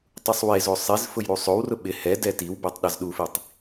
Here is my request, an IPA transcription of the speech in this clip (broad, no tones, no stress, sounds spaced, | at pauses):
tˤ u sˤ w e z o sˤ i z f ʊ j ɾ u sˤ o w r ʊ ɓ ɪ h ɛ d ɛ t i w b e tˤ ɗ a z ɗ u f i tˤ